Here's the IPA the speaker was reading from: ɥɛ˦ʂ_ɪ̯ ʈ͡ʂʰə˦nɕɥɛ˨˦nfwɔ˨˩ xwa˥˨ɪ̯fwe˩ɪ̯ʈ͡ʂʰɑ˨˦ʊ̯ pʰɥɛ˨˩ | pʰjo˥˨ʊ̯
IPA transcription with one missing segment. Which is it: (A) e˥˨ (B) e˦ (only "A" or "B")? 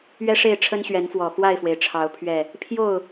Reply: A